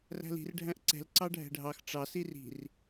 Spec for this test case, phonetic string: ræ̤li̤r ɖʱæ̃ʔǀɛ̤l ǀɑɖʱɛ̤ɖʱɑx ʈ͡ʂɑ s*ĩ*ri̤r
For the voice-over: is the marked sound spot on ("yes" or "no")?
no